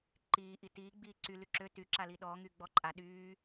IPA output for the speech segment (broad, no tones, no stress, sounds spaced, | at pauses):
ǃ iː ʔ i t iː ɡ͡b iː ǀ y l y ǁ ø t y ǁ a l i ɗ ɔː ŋ y ɡ͡b ɔ ǃʼ a ɗ yː